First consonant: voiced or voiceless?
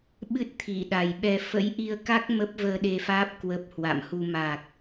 voiced